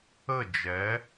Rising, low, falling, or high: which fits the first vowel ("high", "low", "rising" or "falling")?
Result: falling